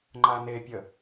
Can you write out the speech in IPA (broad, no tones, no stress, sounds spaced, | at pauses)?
ŋ͡ǃ a n e pʲ ə